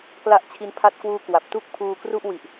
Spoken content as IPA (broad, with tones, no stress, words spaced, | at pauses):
kla˦˥ʔ t͡ɕʰi˧n pʰa˦˥t̚kwuː˦˥ kwa˨˩p̚tu˥˩k̚pʰuː˧kru˥˩ʔ wi˨˩ʔ